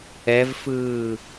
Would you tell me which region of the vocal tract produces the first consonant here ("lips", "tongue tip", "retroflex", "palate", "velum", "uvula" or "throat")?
lips